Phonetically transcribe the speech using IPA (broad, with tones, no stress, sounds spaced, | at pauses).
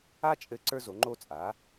a˥ t͡ʃʼ ɘ˧˥ ǀ ə˞˧ z o˩˧ ŋ͡ǃ o˧ t͡sʼ a˩˧